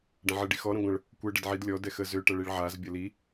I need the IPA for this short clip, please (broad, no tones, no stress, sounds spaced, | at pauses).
ɖ ɐ̃ ʕ ə ɖ i x ɔ ɾ ə̃ ɡʷ ə̃ ɭ | kʷ ɛ ɖ ɛ d ʕ i d lʲ ɔ d ɛ x ə z ø ʈ ɐ ɭ i ɭ ʕ a z bʲ ɐ l i